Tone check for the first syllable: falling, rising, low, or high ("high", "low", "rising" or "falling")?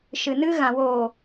low